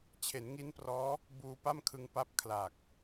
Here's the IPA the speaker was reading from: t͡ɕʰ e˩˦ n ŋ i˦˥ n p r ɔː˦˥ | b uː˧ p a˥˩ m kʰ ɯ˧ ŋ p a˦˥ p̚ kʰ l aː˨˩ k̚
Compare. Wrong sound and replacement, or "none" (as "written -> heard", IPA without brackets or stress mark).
none